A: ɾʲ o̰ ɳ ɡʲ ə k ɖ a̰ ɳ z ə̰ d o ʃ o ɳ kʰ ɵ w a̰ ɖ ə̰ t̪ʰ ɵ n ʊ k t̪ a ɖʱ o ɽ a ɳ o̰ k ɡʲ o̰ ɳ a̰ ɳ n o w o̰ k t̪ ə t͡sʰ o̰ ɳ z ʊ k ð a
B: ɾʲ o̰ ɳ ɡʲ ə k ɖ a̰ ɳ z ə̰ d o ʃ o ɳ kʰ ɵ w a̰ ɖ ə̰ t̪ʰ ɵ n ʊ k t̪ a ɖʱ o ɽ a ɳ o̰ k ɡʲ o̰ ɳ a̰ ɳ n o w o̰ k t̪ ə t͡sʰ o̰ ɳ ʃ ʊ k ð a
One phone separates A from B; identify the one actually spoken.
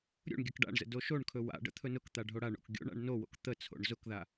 A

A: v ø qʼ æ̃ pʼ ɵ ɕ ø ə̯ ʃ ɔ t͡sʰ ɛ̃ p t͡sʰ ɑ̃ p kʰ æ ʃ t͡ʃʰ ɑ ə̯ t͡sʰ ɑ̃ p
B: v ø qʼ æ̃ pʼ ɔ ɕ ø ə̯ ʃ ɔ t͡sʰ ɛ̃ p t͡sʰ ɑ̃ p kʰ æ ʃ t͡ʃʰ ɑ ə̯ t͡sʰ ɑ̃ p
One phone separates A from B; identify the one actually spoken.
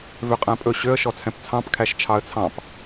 A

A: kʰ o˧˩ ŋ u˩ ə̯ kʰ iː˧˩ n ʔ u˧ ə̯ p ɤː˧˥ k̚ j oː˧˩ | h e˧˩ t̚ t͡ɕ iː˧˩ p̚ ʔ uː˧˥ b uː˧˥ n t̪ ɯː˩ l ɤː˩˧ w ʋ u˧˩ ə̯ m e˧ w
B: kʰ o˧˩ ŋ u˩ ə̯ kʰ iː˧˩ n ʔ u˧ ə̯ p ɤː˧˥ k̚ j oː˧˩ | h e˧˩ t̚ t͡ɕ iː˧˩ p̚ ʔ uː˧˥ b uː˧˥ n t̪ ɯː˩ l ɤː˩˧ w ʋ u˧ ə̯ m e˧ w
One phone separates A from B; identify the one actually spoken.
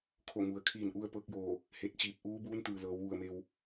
A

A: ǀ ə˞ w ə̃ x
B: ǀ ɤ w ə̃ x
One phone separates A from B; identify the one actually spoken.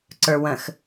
A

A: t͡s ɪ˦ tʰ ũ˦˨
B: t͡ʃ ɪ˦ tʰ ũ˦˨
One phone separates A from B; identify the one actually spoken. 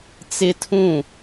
A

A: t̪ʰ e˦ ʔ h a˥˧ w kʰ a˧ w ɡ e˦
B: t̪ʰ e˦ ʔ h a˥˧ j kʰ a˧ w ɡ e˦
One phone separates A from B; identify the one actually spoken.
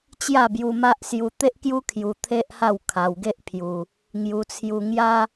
A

